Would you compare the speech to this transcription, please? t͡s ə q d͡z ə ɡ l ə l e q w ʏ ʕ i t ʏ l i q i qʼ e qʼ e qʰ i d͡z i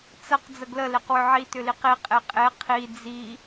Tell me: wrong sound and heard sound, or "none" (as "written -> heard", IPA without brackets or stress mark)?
none